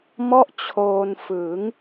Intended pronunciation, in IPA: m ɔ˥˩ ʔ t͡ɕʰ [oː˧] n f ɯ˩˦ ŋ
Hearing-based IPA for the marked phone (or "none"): oː˧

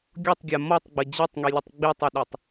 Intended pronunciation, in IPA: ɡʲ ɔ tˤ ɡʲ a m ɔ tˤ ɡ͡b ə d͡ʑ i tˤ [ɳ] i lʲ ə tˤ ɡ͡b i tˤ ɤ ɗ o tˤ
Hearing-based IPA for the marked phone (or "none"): ŋ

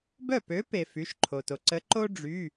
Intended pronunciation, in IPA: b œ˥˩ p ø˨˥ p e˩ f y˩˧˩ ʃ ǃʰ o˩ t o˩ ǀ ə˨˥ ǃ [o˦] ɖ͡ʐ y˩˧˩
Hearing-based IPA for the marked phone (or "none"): o˦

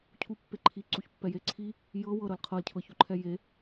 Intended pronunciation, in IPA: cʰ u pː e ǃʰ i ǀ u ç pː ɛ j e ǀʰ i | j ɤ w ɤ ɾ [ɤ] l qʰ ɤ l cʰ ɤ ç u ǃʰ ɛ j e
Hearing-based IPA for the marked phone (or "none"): ɤ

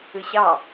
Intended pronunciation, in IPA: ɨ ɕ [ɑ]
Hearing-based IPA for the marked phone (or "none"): ɑ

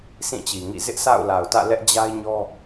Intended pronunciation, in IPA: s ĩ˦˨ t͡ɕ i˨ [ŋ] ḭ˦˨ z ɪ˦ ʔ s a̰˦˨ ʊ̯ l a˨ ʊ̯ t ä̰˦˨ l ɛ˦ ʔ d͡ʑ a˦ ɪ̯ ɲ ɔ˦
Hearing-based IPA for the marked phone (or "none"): ŋ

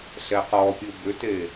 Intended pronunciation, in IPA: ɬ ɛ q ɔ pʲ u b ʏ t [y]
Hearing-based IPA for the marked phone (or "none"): e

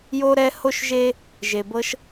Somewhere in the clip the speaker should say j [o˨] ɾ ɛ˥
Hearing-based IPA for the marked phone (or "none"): o˥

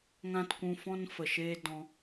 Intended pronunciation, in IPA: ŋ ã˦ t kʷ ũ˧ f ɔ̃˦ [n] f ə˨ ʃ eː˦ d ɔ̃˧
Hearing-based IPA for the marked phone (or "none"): n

